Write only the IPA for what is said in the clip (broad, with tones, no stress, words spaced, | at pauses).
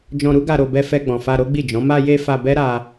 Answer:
d͡ʒɔ̃˧ɾu˦ɡa˧ɾo˧ bɛ˧fɛ˧ɡ͡bɔ̃˨ fa˧ɾo˦ɡ͡bi˦˨d͡ʒɔ̃˨˦ ma˧je˧ fa˧bɛ˦ ɾa˦